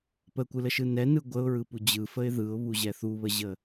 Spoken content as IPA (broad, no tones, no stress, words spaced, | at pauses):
pəkʷɯləʃɯ nɛnɯ ɡʷəʊ̯ɹɯpu d͡ʑɯfəɪ̯ ðɯʊ̯βuʑɛ θuβəʑə